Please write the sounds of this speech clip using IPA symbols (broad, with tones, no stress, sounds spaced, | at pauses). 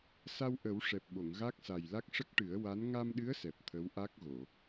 s a˧ w ʔ ə˨˩˦ w ʂ ɛ˨˩ p̚ ɓ o˨˩˨ ŋ ɣ a˦˥ k̚ s a˨˩ j l a˦˥ k̚ ʂ ə˦˥ k̚ ʈ ɨ˨˩˦ ə̯ w a˧˥ n ŋ a˧ m ɗ ɨ˧˥ ə̯ s ɛ˨˩ p̚ t̪ʰ ə˧˥ w ʔ a˦˥ k̚ ɣ o˨˩˨